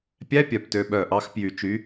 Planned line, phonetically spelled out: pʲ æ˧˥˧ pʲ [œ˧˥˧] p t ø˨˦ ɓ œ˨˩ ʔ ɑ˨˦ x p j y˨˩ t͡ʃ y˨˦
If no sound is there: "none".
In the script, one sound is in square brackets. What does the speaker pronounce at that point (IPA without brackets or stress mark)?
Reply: œ˨˩